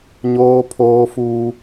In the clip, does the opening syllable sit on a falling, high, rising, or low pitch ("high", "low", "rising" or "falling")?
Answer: high